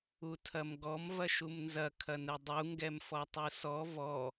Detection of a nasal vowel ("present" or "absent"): absent